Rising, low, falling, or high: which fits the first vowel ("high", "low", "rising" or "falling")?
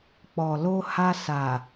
low